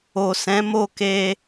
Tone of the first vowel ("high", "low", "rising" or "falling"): low